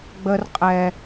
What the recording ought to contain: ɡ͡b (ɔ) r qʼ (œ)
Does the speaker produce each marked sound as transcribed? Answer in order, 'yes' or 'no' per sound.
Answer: no, no

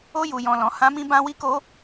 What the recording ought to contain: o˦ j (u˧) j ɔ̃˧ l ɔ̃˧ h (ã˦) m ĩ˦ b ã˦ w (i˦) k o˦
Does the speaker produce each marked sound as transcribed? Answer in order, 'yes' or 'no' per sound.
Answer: yes, yes, yes

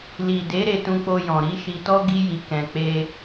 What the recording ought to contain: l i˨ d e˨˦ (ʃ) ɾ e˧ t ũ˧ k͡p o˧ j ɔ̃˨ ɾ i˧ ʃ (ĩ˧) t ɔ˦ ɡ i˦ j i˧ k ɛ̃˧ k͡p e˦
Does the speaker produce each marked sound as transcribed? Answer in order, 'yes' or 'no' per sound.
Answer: no, no

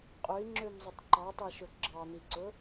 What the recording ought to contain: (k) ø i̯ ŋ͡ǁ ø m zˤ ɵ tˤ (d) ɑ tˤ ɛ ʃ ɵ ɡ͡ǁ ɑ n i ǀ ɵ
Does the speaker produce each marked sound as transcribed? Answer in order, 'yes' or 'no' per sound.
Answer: no, no

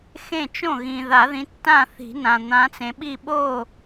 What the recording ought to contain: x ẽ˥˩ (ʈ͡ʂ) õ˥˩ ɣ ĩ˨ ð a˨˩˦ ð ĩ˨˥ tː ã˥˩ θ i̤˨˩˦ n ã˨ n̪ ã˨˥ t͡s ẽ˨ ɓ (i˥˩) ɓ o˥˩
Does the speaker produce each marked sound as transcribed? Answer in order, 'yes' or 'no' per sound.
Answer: no, yes

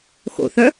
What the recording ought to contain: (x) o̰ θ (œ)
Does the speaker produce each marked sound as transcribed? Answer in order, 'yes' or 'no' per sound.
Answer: yes, yes

